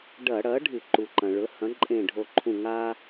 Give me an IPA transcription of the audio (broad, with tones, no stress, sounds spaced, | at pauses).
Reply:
ɖ ɐ˧˩˧ ɽ ɐ˩˥ ɖʱ ɨ˧˩˧ ǃ u˩ ǃ ɐ̃˩ ɭ ɵ˩˥ h ɐ̃˩˥ ǃʼ ẽ˧˩ ɖʱ o˧˩ ǃʰ ũ˧˩ ŋ a˥